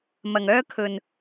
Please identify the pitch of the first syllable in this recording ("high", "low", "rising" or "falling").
low